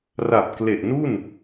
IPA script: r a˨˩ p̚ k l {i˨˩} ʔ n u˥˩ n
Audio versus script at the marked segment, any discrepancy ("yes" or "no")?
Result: yes